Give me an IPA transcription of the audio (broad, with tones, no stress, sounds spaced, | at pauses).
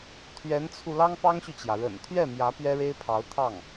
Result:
t̪ʰ ɥ ɛ˧˥ n t͡sʰ u˧ l ɑ˥ ŋ p ɑ˥ ŋ ɕ y˨ t͡ɕ j ä˩ ɻ ə̰˨˩ n t̪ʰ ɥ ɛ˥˩ m j ä˧˥ p ɥ ɛ˥ ɻ e˥ ɪ̯ pʰ ɑ˧˥ ʊ̯ t̪ʰ ɑ˥˩ ŋ